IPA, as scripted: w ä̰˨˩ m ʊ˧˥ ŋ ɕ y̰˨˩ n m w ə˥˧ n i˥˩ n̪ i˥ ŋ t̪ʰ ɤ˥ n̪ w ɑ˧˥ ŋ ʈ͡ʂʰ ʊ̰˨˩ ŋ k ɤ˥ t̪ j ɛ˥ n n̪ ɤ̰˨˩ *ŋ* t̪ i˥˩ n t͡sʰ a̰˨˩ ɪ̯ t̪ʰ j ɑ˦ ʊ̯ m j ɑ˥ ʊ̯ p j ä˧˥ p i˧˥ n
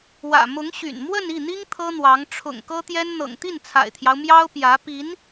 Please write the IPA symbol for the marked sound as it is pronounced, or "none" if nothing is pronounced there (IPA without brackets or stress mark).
ŋ